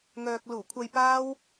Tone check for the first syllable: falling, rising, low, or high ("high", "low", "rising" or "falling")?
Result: low